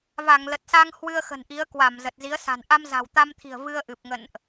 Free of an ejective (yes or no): yes